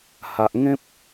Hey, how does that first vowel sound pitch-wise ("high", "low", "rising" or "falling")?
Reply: low